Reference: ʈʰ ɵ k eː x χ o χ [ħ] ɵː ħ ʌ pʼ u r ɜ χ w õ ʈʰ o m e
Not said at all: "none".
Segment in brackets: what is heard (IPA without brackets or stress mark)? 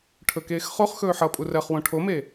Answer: x